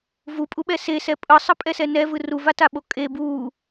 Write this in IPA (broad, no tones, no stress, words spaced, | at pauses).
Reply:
vupʼuɓɛ sesɛ pʼɯsˤɯpʼɛsɛ nɛvɯ ruvataɓo kʼe bu